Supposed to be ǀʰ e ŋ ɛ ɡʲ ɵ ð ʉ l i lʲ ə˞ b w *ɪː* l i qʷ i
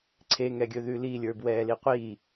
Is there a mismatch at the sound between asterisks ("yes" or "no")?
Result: yes